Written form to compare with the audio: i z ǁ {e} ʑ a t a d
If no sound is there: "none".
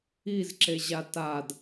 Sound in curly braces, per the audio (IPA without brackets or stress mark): e